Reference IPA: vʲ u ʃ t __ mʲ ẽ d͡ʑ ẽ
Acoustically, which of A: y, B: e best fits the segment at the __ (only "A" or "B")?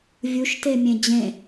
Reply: B